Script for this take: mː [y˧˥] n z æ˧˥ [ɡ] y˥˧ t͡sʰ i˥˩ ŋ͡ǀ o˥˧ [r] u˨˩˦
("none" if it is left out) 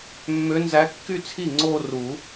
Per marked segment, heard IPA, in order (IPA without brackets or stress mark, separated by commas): ø˧˥, kː, r